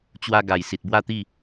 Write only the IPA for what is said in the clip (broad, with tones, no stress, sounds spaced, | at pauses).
t͡ɕ w a˧ ɡ a˨˩ j s i˨ t̚ b w a˥˧ t̪ i˥˧